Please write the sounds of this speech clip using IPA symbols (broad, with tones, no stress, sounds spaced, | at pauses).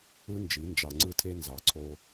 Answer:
ɯ˦ n d͡ʒ i˨˦ n d͡ʒ ɑ˨ ŋ͡ǀ ɯ˧ tʰ e˧ n z ɑ˨ ǀʰ o˧